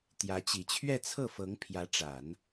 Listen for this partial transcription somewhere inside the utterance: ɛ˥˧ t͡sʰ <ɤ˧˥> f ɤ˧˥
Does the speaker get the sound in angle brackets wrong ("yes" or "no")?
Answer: yes